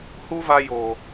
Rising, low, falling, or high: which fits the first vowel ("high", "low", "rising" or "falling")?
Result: high